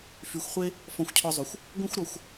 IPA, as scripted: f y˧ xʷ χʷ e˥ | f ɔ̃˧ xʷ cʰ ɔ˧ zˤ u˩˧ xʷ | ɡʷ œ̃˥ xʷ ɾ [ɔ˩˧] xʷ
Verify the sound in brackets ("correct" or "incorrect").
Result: correct